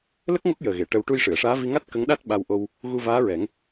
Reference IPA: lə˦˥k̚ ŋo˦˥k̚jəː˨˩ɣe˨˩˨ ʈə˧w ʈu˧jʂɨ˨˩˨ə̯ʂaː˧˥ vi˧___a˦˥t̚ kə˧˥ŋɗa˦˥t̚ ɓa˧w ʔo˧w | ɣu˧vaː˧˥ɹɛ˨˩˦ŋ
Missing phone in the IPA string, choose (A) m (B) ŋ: B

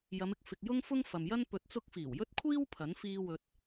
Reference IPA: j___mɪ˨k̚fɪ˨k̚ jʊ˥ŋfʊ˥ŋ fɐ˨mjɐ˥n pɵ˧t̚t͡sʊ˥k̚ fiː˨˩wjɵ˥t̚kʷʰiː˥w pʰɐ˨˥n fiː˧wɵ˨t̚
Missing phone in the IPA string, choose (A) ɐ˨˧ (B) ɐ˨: A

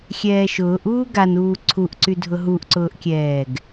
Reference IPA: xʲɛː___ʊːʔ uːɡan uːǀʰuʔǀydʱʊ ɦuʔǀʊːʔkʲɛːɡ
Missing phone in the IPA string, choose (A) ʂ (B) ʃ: B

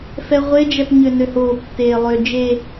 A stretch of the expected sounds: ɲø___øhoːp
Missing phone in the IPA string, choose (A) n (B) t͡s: A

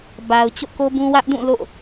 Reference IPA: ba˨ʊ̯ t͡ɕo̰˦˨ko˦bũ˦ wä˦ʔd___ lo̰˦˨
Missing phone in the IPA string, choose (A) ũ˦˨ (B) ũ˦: A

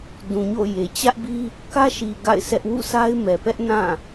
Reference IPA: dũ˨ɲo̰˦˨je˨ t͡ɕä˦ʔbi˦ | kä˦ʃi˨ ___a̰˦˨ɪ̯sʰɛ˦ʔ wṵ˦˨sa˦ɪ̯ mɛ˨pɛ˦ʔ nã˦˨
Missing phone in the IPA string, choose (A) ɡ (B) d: A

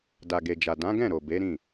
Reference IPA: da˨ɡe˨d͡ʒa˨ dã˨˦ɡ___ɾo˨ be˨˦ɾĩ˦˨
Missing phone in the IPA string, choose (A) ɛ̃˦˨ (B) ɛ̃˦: A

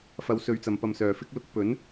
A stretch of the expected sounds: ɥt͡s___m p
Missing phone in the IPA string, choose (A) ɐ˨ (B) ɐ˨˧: A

